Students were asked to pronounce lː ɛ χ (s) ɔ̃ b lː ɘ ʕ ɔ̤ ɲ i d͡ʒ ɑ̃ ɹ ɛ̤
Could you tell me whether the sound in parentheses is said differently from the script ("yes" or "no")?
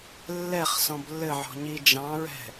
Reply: no